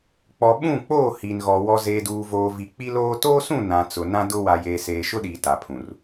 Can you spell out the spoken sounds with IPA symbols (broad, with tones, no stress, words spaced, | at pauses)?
k͡pɔ˨ɓũ˦˨k͡poː˦˨ hi˨nɣɔ˨ wɔ˨ zeː˨duː˨voː˨ vi˨k͡pi˦loː˦ toː˦sũ˦˨ nã˨t͡sʊ˨ nã˦dʊ˦ wa˨jeː˨seː˨ ʃʊ˦ɗiː˨ ta˨pʰũ˨r